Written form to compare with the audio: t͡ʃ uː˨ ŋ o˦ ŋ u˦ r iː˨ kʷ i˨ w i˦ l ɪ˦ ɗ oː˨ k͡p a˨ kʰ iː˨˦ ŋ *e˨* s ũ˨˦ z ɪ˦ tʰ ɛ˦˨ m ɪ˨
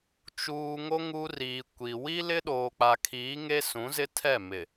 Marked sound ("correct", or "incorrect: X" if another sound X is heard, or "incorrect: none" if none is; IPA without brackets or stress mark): incorrect: e˦